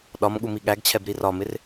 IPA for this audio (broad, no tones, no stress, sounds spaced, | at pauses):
ɗ ɒ m ɠ u m i ɠ æ ɡ t͡ɕʰ ɛ b ɾ i r ɒ m ɪ r